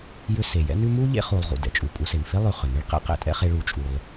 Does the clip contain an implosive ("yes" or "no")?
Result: no